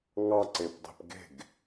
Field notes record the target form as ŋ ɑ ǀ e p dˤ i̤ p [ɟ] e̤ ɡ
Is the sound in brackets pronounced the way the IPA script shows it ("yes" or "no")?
no